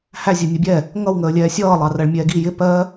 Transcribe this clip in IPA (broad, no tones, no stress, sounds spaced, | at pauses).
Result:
h æ zʲ ɜ nʲ ʌ bʲ ɛ | ŋ ʌ w ŋ əː lʲ ɛː sʲ ʌː lˠ ɑ r ɜ ɭ mʲ ɛː ɡ i j ɪ p ɜ